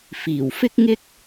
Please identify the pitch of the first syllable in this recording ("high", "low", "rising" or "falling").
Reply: low